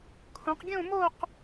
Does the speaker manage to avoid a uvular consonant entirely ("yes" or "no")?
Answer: no